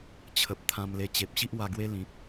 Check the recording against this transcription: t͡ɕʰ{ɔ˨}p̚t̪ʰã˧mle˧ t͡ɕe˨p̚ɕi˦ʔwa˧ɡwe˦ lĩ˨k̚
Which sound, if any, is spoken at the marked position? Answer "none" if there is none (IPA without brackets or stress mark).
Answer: ə˨